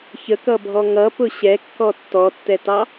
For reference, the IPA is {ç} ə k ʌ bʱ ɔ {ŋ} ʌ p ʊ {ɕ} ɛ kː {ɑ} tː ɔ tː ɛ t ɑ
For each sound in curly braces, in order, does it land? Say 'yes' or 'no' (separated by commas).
yes, yes, yes, no